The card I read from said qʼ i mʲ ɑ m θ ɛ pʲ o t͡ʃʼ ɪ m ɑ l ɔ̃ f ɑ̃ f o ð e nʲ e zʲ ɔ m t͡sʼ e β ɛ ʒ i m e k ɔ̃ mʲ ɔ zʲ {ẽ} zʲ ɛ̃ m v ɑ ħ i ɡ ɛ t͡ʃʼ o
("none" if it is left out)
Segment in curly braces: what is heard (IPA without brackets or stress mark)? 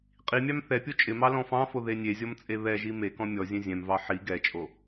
ɛ̃